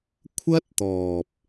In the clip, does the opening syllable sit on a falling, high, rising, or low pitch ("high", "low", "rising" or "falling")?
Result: high